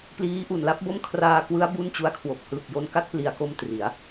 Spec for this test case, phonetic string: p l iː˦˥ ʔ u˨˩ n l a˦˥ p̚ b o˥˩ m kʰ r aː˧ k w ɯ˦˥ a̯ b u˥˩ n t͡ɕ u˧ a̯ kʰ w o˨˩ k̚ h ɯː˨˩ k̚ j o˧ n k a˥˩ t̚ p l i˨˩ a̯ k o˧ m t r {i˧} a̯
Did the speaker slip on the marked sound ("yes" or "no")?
yes